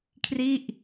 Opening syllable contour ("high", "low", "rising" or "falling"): falling